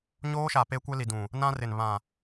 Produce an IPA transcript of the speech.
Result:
ɲ oː˦ ʃ a˨ p e˦ kʷ ɛ˦ l i˨ d ũ˨ | n ã˦ r ɪ˨ n β ã˨

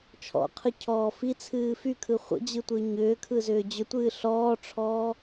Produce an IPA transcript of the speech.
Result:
t͡ʃʰ ɔ̰ qʰ ɯ cʰ ɔː f i t͡sʰ ɨː f y kʰ ɯ χʷ ə̰ d͡ʑ ɯ tʷ ɨ ɲ ʏː kʰ ɯ z ʏː d͡ʑ ʏ tʷ ɨː ɬ ɔː ʈ͡ʂʰ ɔː

